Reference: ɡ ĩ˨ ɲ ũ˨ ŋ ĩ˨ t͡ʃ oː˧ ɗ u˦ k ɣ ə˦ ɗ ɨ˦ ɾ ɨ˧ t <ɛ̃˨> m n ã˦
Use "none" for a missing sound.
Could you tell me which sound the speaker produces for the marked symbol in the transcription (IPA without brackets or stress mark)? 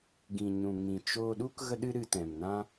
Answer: ɛ̃˨